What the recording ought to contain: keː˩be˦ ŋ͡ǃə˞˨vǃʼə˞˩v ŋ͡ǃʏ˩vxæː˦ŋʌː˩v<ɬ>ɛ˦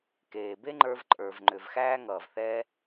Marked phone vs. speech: incorrect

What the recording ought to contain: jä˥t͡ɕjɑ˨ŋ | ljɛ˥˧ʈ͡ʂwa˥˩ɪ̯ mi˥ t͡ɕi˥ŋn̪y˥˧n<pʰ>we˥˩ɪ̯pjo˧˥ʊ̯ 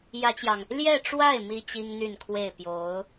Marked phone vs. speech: incorrect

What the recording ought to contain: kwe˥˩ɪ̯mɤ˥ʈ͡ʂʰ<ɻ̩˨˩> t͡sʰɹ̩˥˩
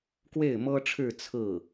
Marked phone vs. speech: incorrect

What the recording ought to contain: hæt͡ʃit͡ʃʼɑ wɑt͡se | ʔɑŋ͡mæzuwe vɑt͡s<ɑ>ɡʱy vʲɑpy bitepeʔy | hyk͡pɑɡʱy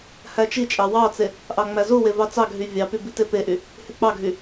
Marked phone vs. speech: correct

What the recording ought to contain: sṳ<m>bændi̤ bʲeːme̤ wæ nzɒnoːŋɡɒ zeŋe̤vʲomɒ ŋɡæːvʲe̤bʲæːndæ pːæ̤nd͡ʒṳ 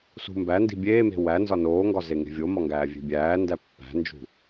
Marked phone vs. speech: correct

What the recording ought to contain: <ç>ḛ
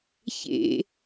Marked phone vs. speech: correct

